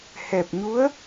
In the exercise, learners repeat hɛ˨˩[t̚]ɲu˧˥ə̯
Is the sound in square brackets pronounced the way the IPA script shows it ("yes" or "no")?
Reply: no